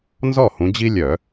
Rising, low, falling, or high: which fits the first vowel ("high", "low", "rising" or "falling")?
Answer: falling